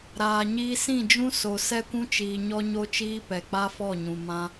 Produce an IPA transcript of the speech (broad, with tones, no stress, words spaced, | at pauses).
ɾaː˨ɲiː˧sĩ˦˨d͡ʒũ˦ so˨sɛ˦kʷũ˦t͡ʃiː˨ ɲɔ˦ɲo˦t͡ʃiː˦ pɛ˨k͡pa˦fɔ˦˨ɲũ˨ mã˧